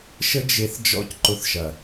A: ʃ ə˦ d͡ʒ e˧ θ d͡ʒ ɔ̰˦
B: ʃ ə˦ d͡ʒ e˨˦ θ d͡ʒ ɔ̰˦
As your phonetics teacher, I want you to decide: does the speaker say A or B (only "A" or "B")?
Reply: A